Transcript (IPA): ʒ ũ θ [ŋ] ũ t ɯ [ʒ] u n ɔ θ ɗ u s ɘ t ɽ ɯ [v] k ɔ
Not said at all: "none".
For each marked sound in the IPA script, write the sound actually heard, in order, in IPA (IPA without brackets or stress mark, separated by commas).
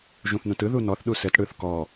n, ð, θ